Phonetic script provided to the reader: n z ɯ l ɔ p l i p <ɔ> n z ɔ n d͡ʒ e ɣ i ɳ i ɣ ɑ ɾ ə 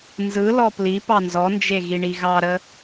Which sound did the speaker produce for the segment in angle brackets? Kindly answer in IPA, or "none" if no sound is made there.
ɑ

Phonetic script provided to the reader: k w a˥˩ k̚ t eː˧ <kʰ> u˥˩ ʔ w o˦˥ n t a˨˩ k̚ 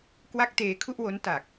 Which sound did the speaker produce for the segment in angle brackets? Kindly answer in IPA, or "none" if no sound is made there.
kʰ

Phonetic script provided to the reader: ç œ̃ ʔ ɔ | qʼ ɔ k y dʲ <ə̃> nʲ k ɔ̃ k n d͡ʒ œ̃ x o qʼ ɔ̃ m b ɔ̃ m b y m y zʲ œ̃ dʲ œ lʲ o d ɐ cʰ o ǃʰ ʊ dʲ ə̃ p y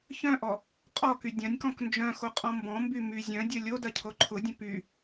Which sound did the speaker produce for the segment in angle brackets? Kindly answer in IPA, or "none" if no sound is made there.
ɐ̃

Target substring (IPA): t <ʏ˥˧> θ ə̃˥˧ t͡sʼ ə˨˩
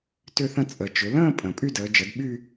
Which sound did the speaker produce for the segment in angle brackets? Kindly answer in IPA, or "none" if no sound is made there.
ʏ˥˧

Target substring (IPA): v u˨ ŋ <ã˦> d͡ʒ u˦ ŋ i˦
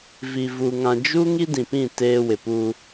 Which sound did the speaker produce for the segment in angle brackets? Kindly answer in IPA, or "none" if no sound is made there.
ã˨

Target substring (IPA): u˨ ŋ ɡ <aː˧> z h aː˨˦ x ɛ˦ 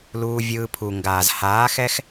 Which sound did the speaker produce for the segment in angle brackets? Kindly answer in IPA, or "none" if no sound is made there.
aː˨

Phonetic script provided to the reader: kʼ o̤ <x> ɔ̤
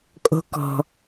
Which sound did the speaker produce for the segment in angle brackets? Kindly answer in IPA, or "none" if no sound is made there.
k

